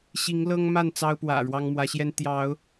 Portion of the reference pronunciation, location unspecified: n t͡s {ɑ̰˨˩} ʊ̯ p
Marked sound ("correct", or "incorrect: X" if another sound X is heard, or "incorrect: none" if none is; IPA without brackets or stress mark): incorrect: ɑ˦